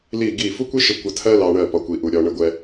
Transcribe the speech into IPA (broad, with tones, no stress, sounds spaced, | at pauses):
l i˦˨ ɡ i˦˨ f u˦ kʷ i˦ ʃ ə˧ kʷ ə˧ tʰ ɜ˦ l ɑ˧ ɳ ɜ˦˨ p ɒ˧ kʷ i˧ ʔ u˧ ɾʲ ɒ˧ ɳ ə˦ ɡʷ ɛ˦